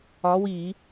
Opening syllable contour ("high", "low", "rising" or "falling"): rising